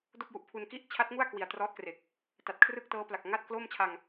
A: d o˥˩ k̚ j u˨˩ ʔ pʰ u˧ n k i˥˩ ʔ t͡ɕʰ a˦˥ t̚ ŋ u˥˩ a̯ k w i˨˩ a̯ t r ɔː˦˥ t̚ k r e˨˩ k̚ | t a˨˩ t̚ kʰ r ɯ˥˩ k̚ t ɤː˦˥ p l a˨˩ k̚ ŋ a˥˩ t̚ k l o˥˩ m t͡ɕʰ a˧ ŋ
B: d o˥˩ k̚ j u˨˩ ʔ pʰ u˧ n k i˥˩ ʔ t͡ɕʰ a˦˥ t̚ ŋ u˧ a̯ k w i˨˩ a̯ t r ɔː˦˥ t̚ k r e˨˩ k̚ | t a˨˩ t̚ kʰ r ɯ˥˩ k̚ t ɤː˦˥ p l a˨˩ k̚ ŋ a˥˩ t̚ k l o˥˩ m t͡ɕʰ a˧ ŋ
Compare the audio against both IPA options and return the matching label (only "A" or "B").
A